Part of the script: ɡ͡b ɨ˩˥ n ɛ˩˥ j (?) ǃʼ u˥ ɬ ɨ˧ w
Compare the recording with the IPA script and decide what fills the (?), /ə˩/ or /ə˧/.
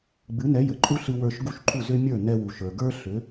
ə˩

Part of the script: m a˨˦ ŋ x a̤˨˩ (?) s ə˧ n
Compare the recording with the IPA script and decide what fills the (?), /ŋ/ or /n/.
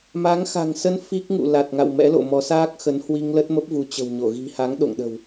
ŋ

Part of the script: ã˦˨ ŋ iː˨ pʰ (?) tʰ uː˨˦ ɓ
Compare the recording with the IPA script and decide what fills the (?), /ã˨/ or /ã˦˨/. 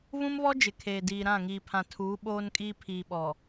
ã˨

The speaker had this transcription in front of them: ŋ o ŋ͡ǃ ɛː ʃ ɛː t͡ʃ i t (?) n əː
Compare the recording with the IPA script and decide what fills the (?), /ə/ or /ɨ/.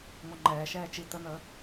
ə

